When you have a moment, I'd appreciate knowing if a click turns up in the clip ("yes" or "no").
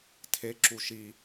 yes